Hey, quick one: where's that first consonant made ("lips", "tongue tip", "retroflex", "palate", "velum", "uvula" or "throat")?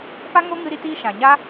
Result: lips